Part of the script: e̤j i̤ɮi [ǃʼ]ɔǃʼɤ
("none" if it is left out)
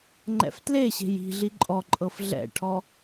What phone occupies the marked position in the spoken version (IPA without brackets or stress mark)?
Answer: ǃʼ